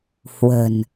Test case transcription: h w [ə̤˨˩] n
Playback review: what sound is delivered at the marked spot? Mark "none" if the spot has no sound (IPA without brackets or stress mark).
ə̤˨˩